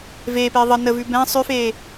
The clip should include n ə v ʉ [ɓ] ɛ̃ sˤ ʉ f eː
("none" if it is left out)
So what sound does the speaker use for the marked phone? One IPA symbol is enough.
b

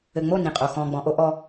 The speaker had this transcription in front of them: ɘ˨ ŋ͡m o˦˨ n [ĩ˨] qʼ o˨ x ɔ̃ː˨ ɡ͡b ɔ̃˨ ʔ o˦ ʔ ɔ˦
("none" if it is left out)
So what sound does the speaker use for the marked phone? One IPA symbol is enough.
ĩ˨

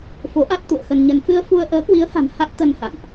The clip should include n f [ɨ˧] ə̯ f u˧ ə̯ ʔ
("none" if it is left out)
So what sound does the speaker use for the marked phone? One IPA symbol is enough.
ɨ˧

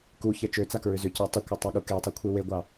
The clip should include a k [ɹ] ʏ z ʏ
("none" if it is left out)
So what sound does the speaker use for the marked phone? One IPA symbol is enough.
ɹ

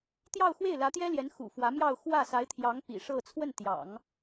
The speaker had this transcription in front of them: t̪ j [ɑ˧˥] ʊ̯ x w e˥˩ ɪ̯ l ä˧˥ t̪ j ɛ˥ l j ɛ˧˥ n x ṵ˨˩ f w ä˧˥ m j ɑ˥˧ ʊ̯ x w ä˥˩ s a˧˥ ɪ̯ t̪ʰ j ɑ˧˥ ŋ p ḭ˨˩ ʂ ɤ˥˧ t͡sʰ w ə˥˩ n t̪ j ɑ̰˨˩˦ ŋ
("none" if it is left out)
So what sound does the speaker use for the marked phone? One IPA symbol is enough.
ɑ˥˧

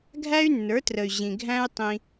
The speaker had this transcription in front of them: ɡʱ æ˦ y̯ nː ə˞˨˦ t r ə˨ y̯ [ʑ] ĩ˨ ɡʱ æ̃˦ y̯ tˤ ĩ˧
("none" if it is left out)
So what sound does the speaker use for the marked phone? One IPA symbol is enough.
ʑ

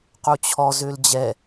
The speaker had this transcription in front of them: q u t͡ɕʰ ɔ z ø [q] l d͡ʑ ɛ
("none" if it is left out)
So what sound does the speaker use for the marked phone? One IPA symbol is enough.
none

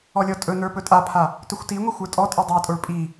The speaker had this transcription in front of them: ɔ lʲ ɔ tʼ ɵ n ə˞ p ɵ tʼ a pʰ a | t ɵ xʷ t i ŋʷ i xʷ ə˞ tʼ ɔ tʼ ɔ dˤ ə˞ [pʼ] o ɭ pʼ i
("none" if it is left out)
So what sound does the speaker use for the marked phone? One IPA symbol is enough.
tʼ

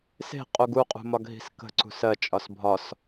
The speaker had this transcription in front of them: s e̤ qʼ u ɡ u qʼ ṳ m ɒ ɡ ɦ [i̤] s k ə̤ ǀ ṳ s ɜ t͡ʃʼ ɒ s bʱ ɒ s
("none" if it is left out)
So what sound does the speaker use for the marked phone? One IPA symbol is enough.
i̤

